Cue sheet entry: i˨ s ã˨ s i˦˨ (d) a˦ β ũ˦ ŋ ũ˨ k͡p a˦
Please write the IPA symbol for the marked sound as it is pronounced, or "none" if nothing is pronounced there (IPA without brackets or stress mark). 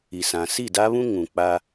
d